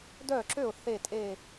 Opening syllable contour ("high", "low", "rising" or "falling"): falling